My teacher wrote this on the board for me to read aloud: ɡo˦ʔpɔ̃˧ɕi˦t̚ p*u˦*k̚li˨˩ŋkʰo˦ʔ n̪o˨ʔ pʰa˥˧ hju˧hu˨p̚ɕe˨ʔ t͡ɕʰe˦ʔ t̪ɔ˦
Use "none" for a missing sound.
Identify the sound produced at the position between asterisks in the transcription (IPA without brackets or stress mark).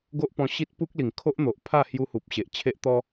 u˦